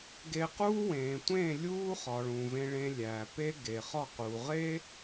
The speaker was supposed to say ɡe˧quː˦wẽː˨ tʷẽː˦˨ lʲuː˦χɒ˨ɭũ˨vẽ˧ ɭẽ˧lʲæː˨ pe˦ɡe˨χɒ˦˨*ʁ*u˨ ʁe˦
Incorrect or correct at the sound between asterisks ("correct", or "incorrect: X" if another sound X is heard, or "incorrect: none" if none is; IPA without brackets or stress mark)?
incorrect: q